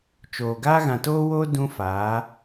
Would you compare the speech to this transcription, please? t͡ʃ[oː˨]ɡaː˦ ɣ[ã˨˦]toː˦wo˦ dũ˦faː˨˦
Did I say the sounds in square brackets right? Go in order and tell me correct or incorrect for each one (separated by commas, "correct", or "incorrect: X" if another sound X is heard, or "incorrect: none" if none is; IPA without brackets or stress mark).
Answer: correct, incorrect: ã˨